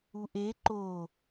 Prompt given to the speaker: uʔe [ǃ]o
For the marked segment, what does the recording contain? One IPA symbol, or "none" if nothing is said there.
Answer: ǃ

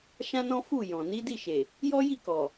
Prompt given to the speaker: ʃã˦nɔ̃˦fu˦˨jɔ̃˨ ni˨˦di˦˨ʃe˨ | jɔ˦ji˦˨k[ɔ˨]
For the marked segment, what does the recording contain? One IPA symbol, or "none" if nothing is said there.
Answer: ɔ˨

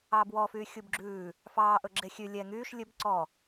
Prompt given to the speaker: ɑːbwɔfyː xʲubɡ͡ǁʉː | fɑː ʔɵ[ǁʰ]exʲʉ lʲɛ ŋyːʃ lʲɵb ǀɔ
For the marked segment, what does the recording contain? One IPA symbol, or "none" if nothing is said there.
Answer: ɡ͡ǁ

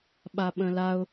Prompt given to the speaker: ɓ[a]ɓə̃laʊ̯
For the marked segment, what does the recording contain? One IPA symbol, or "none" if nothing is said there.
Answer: a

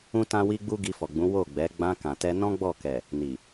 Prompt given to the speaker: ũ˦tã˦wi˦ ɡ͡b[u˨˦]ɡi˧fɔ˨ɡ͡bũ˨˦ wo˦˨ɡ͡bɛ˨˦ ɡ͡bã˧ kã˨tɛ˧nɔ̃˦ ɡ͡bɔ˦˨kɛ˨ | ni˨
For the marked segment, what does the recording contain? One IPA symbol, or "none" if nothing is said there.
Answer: u˦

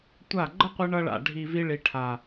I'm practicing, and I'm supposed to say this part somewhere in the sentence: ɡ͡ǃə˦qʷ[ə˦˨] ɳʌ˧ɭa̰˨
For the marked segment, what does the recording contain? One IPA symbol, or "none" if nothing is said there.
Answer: ə˧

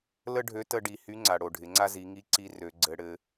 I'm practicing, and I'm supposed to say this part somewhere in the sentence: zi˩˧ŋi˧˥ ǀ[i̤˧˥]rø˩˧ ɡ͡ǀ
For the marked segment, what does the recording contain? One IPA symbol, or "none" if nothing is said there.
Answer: i˧˥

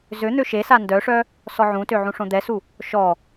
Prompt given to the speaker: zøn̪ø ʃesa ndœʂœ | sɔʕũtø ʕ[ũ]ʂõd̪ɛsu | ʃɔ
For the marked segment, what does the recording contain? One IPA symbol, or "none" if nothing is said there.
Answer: ũ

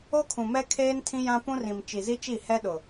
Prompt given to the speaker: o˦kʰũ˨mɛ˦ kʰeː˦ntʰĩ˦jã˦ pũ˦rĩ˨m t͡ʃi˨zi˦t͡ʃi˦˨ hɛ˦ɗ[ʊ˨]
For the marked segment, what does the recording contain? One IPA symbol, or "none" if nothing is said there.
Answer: ʊ˨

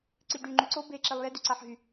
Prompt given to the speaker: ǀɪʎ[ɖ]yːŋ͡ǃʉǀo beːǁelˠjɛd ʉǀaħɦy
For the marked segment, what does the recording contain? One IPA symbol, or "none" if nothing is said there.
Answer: ɖ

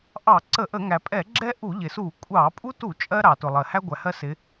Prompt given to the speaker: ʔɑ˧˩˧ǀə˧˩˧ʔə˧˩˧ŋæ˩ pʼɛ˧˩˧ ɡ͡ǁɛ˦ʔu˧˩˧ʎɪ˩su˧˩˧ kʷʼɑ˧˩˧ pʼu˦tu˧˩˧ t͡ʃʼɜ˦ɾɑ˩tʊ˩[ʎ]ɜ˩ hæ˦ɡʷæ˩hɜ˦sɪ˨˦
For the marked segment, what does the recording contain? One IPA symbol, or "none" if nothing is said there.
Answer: lˠ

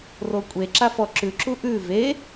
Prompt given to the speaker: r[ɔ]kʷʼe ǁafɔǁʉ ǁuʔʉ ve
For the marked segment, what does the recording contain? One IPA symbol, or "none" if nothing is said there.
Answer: o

